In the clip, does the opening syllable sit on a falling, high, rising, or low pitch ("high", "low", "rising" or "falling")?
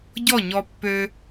falling